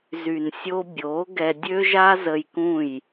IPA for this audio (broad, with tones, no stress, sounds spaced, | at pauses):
z y˨ n sʲ o˧ bʲ oː˨˦ ɡ ɛ˧ dʲ ø˦ ʒ a˦ z ə˧ j k ũ˦˨ j